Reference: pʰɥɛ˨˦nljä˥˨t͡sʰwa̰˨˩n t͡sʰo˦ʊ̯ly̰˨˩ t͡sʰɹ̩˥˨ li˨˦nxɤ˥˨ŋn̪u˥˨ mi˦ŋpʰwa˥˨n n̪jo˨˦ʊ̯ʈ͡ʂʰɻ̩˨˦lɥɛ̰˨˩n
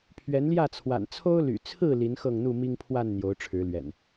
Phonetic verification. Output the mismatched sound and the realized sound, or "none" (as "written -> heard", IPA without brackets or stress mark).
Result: none